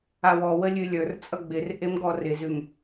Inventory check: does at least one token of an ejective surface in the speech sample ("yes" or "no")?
yes